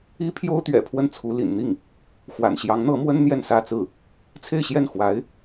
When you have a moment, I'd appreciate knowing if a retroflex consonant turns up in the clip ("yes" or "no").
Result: no